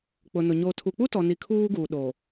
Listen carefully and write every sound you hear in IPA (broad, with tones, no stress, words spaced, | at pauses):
k͡pʊ˨nʊ˨ ɲo˨ tʰu˨k͡pu˦tɔ˨ni˨ kʰuː˦ɡuː˨ɗo˨